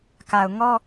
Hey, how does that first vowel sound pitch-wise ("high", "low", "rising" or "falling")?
low